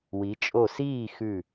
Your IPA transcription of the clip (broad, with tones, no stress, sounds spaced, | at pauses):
w i˩˧ t͡ʃʼ o˧˩ s iː˥˨ x ʉ˧˩